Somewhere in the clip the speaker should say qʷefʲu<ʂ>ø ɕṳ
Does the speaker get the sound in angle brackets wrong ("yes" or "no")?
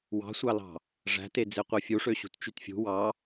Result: no